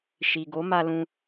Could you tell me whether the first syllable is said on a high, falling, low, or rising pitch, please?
low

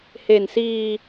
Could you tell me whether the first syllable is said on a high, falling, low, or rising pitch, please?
low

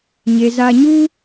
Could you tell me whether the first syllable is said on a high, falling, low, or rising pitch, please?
low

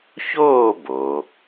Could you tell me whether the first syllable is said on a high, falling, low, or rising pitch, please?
falling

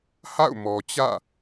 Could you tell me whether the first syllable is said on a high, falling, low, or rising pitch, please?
falling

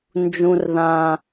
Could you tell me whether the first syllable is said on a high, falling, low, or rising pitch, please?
high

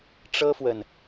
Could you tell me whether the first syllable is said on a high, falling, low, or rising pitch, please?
high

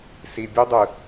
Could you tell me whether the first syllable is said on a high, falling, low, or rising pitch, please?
low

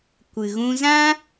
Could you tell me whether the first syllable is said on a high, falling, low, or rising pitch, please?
low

